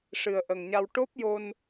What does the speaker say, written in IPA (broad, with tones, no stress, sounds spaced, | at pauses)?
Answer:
ʂ ɨ˨˩ ə̯ ʔ ə˨˩ ŋ ɲ a˧ w ʈ o˦˥ p̚ j o˧ n